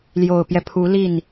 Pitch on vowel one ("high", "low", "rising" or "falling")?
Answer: low